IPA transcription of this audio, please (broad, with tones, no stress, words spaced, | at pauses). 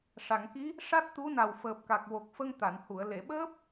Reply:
ʂa˨˩˨ŋki˧˥ | ʂa˦˥t̚t̪u˧˥na˨˩w fəː˨˩p̚ka˨˩k̚wo˨˩k̚fə˧ŋ t̪a˨˩˨nhu˨˩˨ə̯ le˨˩˨ɓəː˦˥p̚